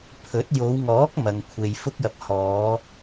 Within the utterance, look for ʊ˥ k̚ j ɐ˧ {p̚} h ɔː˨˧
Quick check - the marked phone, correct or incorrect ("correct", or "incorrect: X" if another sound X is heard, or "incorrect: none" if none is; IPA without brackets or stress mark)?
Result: correct